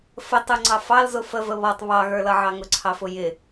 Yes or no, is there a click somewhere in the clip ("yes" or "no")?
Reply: yes